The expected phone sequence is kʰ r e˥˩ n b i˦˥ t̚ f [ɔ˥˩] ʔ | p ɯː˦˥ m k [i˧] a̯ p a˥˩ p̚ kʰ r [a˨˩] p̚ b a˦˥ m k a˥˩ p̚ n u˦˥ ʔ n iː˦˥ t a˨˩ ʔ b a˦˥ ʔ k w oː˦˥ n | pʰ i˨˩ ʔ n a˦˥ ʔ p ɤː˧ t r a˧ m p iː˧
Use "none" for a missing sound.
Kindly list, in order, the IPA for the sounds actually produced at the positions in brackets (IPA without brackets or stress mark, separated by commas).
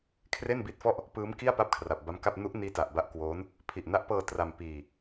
ɔ˥˩, i˥˩, a˨˩